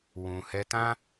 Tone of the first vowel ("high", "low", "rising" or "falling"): low